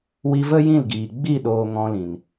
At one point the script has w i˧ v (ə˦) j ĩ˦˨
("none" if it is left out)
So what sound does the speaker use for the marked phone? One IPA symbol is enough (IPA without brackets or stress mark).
ə˦